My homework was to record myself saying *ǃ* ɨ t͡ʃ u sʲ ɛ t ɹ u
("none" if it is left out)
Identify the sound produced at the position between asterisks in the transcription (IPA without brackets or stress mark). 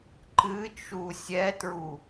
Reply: ǃ